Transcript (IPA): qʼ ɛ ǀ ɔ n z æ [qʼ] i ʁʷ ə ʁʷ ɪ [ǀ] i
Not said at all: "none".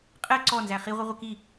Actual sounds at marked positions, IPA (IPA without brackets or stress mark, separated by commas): χ, k